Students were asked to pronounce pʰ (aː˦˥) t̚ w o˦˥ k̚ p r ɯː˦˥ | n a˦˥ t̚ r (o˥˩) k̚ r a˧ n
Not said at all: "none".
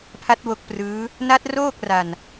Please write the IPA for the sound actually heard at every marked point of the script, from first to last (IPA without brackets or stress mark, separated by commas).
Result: a˦˥, oː˥˩